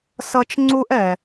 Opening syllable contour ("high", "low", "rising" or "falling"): high